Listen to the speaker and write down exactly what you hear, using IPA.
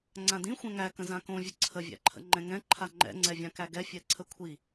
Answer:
ŋ͡ǀ ã d ĩ xʷ ɛ̃ ŋ æ k ə̃ z ã k õ vʲ ə ǀʰ ə vʲ æ̰ ǃʰ ə̰ ŋ͡ǃ ɛ̃ ŋ ɛ̃ ǃʰ a ŋ͡ǃ ɛ̰ ŋ͡ǀ ɛ vʲ ã k æ ɡ ɛ fʲ ɛ ǀʰ ə kʷʰ i

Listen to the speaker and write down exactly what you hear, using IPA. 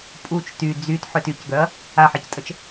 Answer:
pʼ u t͡ʃ t y d͡z y t ħ ʏ t y c ɡ œ ɐ̯ | a ħ ɛ c tʼ ə t͡ʃ

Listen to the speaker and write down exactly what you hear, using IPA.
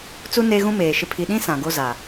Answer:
t͡s u˦ n e˦ ɣ ũ˦ m eː˨ ʃ ɪ˨ pʰ i˨ ɗ ĩ˦ s ã˨ ɡ o˦ z a˨

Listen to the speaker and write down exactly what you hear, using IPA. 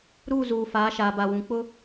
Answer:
ɾ uː˦˨ z uː˨ f aː˨˦ ʃ aː˨ b a˨ w ũ˨ k͡p ʊ˦

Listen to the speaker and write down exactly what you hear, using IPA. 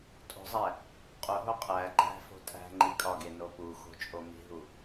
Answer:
tʼ o̤ zˤ æ | qʼ o ɦ o qʼ æ ɡ͡ǃ æ̤ f o̤ tʼ æ̤ ŋ͡ǃ i kʼ ɒ ɡ e n o p u x o̤ t͡ʃʼ o m i̤ ɦ u

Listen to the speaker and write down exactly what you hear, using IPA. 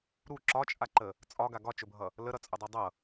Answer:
ɾ u ǁ ɒ t͡ʃʼ a ǃ ə | t͡sʼ ɒ ɡ a ɡ ɒ t͡ʃ ɵ bʱ ʌ | l ə ɾ ʌ t͡sʼ ɵ dˤ u dˤ ʌ

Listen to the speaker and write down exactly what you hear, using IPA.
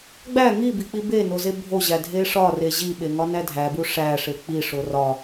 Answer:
ɡ͡b æ ŋ i b i k͡p i b e n o z e bʱ o ʑ æ dʱ e ʂ ɒ r e ʑ i ɓ e ŋ ɒ n æ dʱ æ b u ʂ æ ʂ e k͡p i ʂ o r ɒ

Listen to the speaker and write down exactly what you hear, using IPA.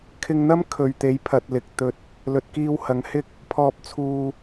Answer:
kʰ ɪ˧ ŋ n̪ ɐ˥ m kʰ ɵ˨ ɥ t̪ e˨˧ j pʰ ɐ˨ t̚ l ɪ˨ k̚ t̪ ɵ˧ t̚ | l ɵ˨ t̚ k iː˧ w h ɐ˨˧ ŋ h ɪ˥ k̚ | pʰ ɔː˧ p̚ t͡sʰ uː˧

